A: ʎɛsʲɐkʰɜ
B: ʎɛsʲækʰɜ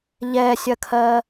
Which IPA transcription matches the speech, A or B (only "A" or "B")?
A